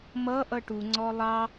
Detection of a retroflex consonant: present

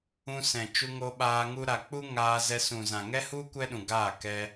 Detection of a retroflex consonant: absent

